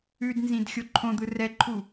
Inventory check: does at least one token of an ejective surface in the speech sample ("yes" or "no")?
no